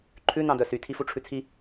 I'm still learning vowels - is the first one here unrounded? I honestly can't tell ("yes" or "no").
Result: no